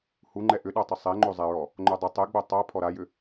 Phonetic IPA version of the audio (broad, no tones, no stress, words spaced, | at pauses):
huŋ͡ǃɛ ʔʏɗatˤə sˤɛŋ͡ǃozˤɛɹɔ | ŋ͡ǃodˤɪ tˤɛɡ͡bo tˤa pʰɔɾajʏ